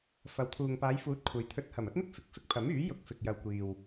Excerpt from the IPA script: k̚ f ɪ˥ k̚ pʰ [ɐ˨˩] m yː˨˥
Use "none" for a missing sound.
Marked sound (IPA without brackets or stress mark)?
ɐ˨˥